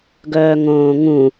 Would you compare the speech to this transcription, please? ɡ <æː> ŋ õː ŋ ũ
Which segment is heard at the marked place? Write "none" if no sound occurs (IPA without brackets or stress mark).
œː